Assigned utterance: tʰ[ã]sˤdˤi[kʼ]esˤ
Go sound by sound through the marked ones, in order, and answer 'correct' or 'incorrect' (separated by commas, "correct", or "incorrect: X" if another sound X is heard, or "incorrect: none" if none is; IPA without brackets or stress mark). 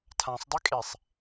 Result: correct, correct